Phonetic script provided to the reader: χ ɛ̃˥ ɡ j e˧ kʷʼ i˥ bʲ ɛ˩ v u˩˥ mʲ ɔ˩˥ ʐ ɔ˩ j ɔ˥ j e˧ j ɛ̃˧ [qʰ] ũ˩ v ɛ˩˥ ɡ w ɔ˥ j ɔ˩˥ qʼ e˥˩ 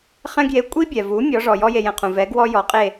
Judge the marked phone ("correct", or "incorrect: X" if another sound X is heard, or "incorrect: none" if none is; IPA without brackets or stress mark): correct